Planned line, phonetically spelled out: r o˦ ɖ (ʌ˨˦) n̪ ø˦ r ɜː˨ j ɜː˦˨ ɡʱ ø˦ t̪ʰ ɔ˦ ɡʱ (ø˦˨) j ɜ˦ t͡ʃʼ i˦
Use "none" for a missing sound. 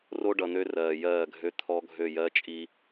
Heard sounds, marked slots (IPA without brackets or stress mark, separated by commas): ʌ˨, ø˦˨